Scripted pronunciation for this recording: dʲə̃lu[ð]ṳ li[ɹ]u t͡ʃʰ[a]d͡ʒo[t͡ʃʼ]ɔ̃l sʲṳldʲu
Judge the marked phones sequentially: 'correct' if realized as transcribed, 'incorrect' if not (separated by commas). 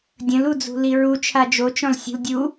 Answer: incorrect, correct, correct, incorrect